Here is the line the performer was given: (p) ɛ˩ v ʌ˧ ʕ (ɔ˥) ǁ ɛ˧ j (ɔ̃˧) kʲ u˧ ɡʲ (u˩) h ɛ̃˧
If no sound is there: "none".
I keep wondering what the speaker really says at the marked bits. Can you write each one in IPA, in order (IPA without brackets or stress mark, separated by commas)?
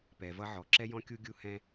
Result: p, ɔ˩, ɔ̃˧, u˧